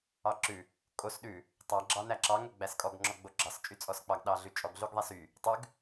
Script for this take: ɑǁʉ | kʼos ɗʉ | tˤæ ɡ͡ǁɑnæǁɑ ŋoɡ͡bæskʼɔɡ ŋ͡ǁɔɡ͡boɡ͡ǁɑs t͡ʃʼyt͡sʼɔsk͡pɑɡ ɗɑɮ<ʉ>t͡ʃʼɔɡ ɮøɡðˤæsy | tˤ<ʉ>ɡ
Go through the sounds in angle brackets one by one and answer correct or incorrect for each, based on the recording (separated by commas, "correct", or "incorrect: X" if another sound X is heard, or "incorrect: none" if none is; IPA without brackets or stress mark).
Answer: correct, correct